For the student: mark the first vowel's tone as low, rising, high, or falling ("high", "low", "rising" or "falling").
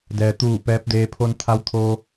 low